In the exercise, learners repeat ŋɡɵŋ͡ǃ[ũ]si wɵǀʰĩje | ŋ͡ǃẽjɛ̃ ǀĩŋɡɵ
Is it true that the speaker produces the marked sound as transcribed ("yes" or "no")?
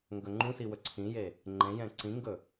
yes